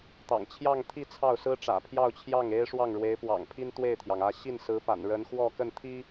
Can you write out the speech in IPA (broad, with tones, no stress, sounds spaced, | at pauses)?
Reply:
t̪ ɑ̰˨˩ ŋ t͡ɕʰ j ɑ˥˧ ŋ t̪ʰ i˥˧ t͡sʰ ɑ˥˩ ʊ̯ s ɹ̩˥ ʈ͡ʂ ä̰˨˩ pʰ j ɑ˥˧ ʊ̯ t͡ɕʰ j ɑ˥˩ ŋ e˥ ɪ̯ ʂ w ɑ˥˩ ŋ ɻ w e˧˥ ɪ̯ p w ɑ̰˨˩ ŋ pʰ i˥ n t̪ w e˥˩ ɪ̯ t̪ʰ j ɑ˩ ŋ ä˥˧ ɕ i˥˩ n s ɹ̩˧˥ p a̰˨˩ n ɻ ə˧˥ n x w ɔ˥˧ k ə˥˩ n t̪ʰ i˥